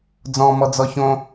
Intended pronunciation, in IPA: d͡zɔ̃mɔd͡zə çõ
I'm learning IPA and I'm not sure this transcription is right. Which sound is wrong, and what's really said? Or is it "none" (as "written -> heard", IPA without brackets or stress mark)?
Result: ə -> ɔ